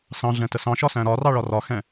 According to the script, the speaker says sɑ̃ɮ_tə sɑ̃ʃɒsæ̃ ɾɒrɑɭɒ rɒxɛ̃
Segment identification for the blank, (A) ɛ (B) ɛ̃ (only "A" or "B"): B